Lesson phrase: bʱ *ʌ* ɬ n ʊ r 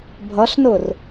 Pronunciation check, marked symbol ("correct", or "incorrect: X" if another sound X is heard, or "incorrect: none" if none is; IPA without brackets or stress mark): correct